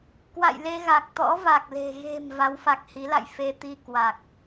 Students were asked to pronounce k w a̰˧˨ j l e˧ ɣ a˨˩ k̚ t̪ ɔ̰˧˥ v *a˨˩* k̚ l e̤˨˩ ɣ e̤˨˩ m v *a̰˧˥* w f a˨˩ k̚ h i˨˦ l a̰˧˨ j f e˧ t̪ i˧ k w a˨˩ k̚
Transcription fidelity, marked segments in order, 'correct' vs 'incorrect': correct, incorrect: a˨˦

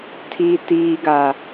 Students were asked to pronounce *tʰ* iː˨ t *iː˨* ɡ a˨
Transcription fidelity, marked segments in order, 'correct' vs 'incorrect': correct, correct

